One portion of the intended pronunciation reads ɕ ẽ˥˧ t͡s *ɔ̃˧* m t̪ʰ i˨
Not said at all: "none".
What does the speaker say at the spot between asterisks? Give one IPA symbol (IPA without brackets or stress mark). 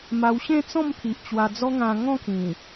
ɔ̃˥˧